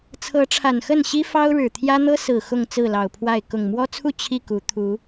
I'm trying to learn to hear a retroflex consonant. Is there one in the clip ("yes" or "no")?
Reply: yes